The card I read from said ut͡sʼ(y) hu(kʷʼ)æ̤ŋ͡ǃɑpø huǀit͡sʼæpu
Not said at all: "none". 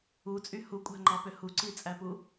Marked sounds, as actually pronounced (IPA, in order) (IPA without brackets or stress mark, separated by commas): y, kʷʼ